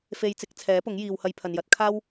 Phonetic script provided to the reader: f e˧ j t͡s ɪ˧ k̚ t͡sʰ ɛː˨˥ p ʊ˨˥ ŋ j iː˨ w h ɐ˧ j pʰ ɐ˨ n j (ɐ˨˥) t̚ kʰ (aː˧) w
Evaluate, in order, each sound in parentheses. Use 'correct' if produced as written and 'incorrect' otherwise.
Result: correct, incorrect

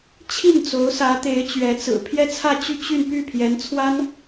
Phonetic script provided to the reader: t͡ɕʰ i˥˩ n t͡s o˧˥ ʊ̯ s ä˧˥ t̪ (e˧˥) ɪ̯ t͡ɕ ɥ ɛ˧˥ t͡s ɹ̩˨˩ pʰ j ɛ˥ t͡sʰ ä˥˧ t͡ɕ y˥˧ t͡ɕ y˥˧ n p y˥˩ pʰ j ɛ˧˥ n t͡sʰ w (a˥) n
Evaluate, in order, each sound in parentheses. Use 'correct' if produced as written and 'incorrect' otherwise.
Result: correct, correct

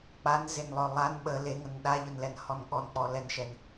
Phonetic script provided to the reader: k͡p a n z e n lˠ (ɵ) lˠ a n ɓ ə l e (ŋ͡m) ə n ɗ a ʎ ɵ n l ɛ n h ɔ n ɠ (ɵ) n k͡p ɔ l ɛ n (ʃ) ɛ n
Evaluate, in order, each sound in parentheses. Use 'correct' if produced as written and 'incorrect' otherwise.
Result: correct, incorrect, incorrect, correct

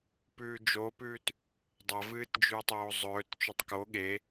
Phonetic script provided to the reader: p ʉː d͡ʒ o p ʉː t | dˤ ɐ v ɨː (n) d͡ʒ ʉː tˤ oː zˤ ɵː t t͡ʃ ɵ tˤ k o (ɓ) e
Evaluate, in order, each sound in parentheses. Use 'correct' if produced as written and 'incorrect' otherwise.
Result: incorrect, incorrect

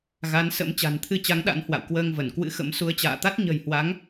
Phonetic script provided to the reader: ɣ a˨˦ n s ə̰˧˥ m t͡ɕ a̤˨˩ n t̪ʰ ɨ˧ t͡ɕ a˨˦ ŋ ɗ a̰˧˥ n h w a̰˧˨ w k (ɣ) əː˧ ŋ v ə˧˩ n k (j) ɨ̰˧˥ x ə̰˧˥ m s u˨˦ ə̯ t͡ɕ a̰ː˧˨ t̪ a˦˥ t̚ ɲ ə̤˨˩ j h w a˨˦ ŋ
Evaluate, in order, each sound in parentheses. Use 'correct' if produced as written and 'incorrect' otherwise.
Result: incorrect, incorrect

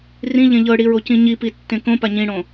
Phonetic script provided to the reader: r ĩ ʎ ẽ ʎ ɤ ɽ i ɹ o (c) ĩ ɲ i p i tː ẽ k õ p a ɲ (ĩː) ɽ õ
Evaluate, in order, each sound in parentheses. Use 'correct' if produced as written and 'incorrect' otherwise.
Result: correct, incorrect

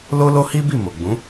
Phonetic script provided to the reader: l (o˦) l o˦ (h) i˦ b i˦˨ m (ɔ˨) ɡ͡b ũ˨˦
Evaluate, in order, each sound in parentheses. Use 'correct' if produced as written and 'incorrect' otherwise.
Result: correct, correct, incorrect

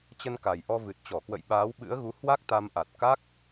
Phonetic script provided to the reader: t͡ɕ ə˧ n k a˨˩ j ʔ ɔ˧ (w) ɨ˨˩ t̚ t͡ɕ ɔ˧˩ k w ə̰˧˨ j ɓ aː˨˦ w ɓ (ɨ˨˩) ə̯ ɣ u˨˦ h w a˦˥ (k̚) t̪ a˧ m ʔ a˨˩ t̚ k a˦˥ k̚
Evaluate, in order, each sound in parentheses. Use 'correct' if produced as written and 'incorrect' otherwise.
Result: incorrect, incorrect, correct

